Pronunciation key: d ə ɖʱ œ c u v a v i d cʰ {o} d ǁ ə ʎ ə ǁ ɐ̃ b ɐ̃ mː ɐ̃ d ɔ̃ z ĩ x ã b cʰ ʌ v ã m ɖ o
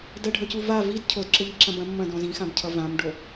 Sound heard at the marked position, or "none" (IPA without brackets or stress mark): o